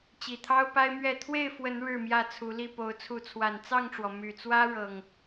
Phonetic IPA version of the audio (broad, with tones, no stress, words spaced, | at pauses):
t͡ɕi˨˩t̪ʰɑ˦ʊ̯pa˦ɪ̯ mɥɛ˥˨ t̪ʰwe˥˨ɪ̯ fwə˨˦n ɻɻ̩˥˨mjä˥˨t͡sʰu˨˦li˥˨ po˨˦ʊ̯t͡sʰu˨˦t͡sʰwa˨˩n t͡sɑ˥˨ŋʈ͡ʂwɔ˩ my˨˩t͡swä˦ ɻɤ˨˩ŋ